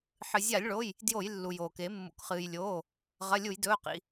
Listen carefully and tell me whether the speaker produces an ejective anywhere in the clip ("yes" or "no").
no